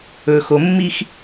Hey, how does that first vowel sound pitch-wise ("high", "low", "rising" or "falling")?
low